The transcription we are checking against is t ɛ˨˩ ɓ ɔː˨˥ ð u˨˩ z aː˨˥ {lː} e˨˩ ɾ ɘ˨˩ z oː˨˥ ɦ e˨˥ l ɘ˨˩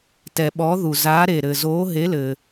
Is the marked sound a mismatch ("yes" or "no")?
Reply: yes